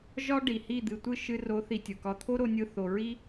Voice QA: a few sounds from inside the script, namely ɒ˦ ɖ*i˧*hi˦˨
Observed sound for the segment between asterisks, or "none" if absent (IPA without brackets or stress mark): i˨